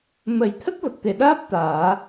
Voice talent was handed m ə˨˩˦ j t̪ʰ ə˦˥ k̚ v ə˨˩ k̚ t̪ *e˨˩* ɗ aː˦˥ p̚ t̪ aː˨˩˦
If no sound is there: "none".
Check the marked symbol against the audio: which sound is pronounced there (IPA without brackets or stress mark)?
e˨˩